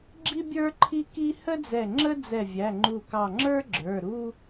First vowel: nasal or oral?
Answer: oral